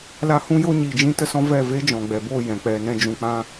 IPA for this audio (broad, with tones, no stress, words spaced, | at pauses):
la˦ hũ˦ jo˦ɲiː˨ d͡ʒĩ˦tə˦sɔ̃˦vɛ˦˨ ve˦d͡ʒɔ̃˨ɡ͡bɛ˨bo˦˨ jɛ̃˨k͡pɛ˧nɛ̃˦ d͡ʒũ˨k͡pã˧